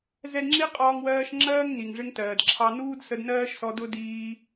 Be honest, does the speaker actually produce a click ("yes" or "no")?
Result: yes